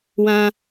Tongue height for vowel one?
low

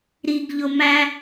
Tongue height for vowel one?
high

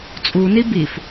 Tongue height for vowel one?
high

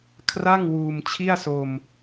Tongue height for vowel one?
low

